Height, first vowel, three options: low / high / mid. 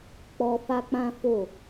mid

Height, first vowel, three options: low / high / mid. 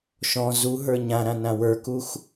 mid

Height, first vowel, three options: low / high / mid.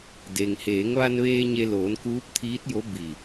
mid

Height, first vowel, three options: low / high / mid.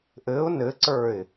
mid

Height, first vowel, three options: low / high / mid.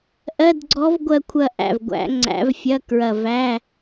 mid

